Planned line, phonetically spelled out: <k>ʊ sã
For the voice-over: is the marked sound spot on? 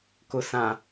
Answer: yes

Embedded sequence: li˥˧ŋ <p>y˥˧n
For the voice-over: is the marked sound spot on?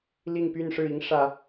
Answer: yes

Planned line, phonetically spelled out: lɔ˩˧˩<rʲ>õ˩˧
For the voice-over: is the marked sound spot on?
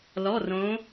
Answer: no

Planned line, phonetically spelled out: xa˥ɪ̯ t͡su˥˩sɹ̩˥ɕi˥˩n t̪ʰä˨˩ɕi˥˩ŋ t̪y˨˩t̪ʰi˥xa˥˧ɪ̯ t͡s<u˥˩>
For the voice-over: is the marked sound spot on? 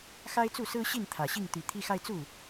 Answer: yes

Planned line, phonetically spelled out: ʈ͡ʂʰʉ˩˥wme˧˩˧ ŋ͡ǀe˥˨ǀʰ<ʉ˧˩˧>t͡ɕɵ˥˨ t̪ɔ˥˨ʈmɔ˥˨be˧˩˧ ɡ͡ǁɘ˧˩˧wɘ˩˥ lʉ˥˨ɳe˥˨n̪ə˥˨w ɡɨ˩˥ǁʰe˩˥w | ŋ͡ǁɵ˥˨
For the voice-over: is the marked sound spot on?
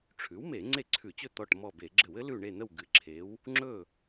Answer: yes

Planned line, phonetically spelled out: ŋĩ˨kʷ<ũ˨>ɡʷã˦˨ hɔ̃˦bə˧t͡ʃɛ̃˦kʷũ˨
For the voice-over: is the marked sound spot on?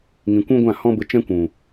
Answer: no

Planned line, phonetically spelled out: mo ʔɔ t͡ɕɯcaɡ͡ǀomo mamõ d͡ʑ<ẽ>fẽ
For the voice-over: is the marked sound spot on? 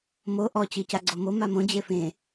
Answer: no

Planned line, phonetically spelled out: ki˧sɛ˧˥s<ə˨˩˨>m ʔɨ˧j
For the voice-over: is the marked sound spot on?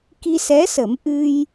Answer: no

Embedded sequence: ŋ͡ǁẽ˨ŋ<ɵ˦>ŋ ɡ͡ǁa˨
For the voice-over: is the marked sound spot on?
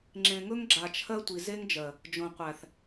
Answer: yes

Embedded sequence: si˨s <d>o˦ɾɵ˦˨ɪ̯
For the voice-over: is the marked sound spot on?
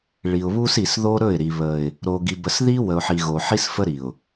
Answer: no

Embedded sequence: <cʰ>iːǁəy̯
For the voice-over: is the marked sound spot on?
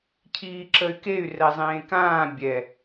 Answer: yes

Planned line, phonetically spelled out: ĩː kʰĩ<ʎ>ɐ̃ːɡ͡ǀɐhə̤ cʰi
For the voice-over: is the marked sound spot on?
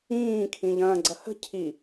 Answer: yes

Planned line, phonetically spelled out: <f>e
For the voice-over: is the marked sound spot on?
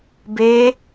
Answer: no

